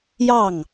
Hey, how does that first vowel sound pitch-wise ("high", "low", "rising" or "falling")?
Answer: falling